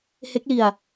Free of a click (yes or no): yes